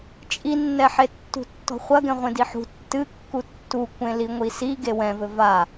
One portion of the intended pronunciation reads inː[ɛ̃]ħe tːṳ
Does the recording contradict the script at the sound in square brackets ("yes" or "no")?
yes